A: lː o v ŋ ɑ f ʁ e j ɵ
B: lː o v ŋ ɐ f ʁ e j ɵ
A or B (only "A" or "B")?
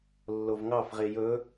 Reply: A